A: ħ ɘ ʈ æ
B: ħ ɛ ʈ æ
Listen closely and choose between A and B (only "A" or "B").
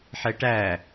B